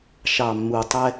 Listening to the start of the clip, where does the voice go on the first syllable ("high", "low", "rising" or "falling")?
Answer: low